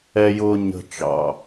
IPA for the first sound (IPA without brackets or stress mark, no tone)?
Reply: ɛ